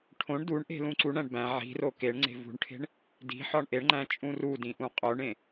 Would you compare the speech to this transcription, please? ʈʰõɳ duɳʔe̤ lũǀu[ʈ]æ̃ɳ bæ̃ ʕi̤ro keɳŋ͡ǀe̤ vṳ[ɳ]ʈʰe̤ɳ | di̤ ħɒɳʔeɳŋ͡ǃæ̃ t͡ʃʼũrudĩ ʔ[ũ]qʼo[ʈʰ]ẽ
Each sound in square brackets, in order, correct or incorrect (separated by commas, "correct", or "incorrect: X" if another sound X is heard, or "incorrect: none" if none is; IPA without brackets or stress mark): incorrect: ɳ, correct, correct, incorrect: ɳ